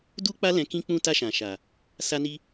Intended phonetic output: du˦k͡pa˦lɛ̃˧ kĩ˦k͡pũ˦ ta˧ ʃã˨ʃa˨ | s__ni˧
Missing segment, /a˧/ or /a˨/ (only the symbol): a˧